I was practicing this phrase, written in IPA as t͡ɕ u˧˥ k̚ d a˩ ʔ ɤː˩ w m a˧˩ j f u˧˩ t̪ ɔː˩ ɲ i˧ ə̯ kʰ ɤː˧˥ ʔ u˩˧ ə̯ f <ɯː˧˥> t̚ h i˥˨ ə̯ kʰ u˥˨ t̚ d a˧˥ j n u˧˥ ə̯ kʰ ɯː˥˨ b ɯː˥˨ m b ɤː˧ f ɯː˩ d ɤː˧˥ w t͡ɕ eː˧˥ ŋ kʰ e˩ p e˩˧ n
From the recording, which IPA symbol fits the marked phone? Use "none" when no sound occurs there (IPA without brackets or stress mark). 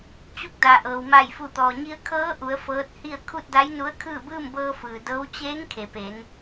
ɤː˧˥